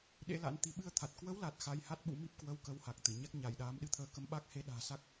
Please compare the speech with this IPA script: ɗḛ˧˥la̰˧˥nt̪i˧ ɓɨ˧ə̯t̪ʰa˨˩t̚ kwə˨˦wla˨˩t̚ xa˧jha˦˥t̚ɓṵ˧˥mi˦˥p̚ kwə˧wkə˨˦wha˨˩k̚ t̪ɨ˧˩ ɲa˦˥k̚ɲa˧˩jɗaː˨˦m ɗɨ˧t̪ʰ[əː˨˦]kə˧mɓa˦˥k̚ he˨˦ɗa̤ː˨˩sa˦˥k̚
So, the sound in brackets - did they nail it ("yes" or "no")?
yes